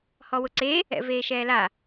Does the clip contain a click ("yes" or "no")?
yes